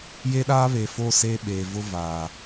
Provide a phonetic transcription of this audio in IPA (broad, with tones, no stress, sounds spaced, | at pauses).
j e˦ ɗ aː˦ β e˨ f o˦˨ s eː˦ ɓ eː˨ v ʊ˦ v aː˨